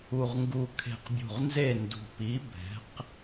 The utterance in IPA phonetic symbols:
u˨˩ ʁ ŋ ɡ u˨˩ kʰ e̤˨˩ q bʲ ṳ˨˩ ʁ n z e˦˨ n d ṳ˨˩ p i˨˥ b ɛ̤˨˥ q

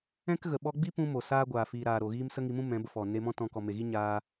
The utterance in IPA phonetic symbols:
ɛ̃˦ k ɣ ə˨ ɓ ɔ˧ ɡ͡b i˦ p ũ˧ m o˨ s aː˦ ɡʷ aː˨ f iː˨ ɾ aː˨ ɾ o˨ ɣ iː˦ m s ə˦ ŋ i˧ m ũ˦ m ɛ̃˨˦ b ə˧ f ɔ˨ n e˧ m ɔ̃˦ t ɔ̃˧ k ɔ˨ m e˨ ɣ i˦ ɲ aː˦

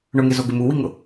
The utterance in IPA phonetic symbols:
ɳ ʊ ŋ e z o ɡ ɪ m u w i ŋ ʊ

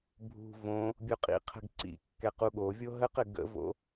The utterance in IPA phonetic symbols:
bʱ ṳ v õ | bʲ o qʼ ḭ qʰ ə̤ ɡ ǀ ḭ kː ɛ q u ɠ o vʲ o ɦ ə q ɘ ɡ ə̰ v o̰

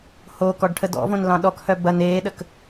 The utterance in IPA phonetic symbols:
h o k ɔ ɖ ʈʰ ə d ɔ̰ v õ n l ɑ̃ ɗ ɔ k h œ b ɐ n eː ɗ ə k

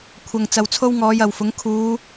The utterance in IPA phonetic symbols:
kʷʰ ɐ˨ ŋ t͡s ɐ˨ w t͡sʰ o˥ w ŋ ɔː˨˧ j ɐ˨ w f ʊ˨˥ ŋ kʰ uː˨˧

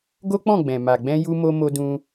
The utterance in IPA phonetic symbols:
ɡ o˦ k͡p ɔ̃˦˨ ɡ͡b ɛ̃˨ m a˨ ɡ͡b ɛ̃˧ j u˧ m o˧ m o˧ d ũ˧

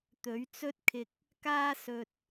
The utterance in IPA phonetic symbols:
t̪ ɵ˨˥ ɥ t͡s ɵ˥ t̚ kʰ ɪ˧ k̚ | k aː˥ s ɵ˧ t̚

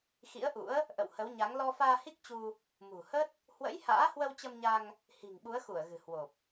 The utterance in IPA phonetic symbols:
x ḭ˧˥ ə̯ ʔ ṵ˧˥ ə̯ | ʔ ə̰˧˨ w h ə˨˦ w ɲ a˨˦ ŋ l ɔ˧ f aː˧ h i˦˥ k̚ t͡ɕ u˧ | m ṳ˨˩ h ə˦˥ t̚ | h w ə̰˧˥ j h a̰ː˧˥ h w ə˧ w t͡ɕ ə˧ m ɲ a˧ ŋ | h i̤˨˩ ŋ ɓ u˨˦ ə̯ x u˧˩ ə̯ ɣ ɨ̤˨˩ h w o˨˩ p̚

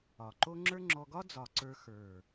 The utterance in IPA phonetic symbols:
ɒ˨˩ ǃ o˥ ŋ͡ǁ ə˞˥ ŋ͡ǁ ɔ˧ ɡ ɒ˥ d͡z ɒ˨˩ ǀ ə˞˧ x ə˞˨˩

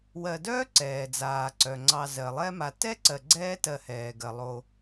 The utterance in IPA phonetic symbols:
w ɜ˨ d œː˥ ǀ ɛː˩ d͡z aː˩ ǀ œ˩ ŋ͡ǀ ɑ˨ z ɜ˩ lˠ ɛ˦ m a˨ t ɛ˥ ǀ ɜ˨ ɡ͡ǀ ɛː˦ t ɜ˨ h ɛː˩ ɡ ɜ˩ lˠ o˨

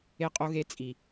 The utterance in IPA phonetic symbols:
e˦ qʼ o˦ ɣ e˦ t͡sʼ i˨

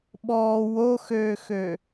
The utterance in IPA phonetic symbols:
ɓ ɔː w o x øː x ø

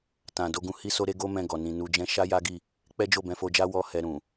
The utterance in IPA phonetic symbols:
t ã˨ d o˧ ɡ ũ˧ h i˦ s o˦ ɾ e˦ ɡ o˦ m ɛ̃˧ ɡ ɔ˨ n ĩ˨ n u˧ d͡ʒ ɛ̃˦ ʃ a˦ j a˦ ɡ i˦˨ | k͡p ɛ˦ d͡ʒ o˦˨ b ɛ̃˧ f o˧ d͡ʒ a˦ w ɔ˦ h ɛ˧ ɾ ũ˨

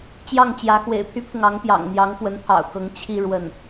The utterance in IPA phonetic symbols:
t͡ɕ j ɑ˥˩ ŋ t͡ɕ j ä˧˥ x w ḛ˨˩ ɪ̯ pʰ y˥ pʰ ʊ˨ ŋ ɑ˧˥ ŋ p j ɑ̰˨˩ ŋ n̪ j ɑ˧˥ ŋ p w ə˧˥ n pʰ ɑ̰˨˩ ʊ̯ k ɤ˧˥ ŋ t͡ɕʰ i˥˧ ɻ w ə˥˩ n

